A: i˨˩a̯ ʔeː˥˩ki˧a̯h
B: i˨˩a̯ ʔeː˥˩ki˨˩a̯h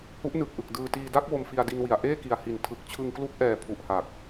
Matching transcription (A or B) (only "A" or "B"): B